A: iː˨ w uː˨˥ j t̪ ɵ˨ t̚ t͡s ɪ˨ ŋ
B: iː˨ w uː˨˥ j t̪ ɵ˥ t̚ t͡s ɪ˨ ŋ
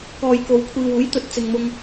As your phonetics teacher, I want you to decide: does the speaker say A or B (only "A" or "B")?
A